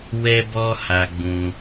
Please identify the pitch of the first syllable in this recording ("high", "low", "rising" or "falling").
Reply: high